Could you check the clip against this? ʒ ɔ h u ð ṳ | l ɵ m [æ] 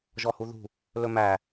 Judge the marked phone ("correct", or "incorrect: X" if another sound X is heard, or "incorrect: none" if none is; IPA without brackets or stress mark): correct